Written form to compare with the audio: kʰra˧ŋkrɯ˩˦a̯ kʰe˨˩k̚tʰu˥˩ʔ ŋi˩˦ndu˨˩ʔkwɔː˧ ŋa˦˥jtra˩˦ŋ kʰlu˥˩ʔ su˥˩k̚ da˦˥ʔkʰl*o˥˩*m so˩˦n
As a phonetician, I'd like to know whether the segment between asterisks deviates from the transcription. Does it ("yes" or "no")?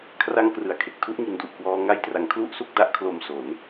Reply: yes